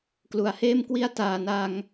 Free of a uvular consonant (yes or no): yes